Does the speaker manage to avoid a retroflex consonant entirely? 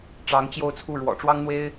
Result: no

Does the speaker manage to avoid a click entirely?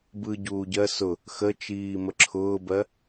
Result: no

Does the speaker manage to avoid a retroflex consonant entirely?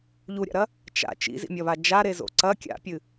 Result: yes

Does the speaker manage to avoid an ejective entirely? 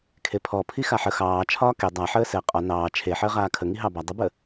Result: no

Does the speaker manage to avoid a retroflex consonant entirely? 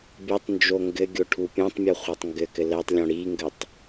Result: no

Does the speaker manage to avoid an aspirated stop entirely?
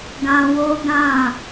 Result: yes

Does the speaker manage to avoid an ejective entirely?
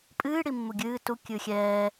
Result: no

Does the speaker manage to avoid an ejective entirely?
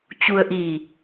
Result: yes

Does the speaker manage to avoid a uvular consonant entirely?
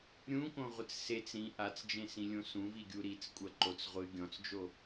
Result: no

